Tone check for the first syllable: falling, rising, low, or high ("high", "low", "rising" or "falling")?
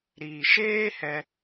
low